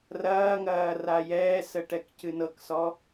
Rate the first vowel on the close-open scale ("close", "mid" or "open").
open